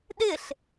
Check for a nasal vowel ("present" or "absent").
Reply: absent